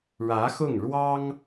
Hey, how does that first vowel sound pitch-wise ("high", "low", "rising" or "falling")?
rising